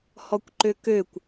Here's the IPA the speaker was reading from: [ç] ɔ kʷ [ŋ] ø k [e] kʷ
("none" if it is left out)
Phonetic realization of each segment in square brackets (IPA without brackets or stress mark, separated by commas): h, ǃ, ø